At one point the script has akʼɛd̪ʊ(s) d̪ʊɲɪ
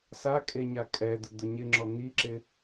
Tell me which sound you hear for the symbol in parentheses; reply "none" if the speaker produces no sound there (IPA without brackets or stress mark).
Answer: none